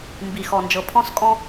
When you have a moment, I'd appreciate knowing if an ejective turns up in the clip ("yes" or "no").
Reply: yes